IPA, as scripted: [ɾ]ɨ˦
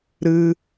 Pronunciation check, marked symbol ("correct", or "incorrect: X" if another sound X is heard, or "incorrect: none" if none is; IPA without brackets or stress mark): correct